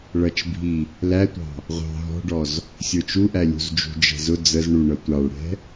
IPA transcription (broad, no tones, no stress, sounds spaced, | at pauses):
ɭ ʌ t͡ʃ bʱ i | l æ tʷ ɑ̤ | ʁʷ ɑ̤ ɦ ɔ̤ ɖ ɔ z | sʲ ə˞ t͡ʃ u ʔ æ lʲ ṳ z d͡ʒ ṳ d͡ʒ ɛ̤ z ʊ d͡z ə z ɳ u ɳ ʌ tʷ ɑ ɭ ɽ ɛ̤